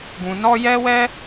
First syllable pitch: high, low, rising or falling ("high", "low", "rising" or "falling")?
low